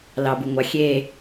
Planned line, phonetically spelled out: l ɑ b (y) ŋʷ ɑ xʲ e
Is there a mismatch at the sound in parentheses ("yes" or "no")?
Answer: yes